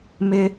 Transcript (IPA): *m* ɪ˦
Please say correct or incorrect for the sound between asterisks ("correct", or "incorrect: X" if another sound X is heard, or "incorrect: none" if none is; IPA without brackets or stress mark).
correct